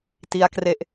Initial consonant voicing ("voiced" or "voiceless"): voiceless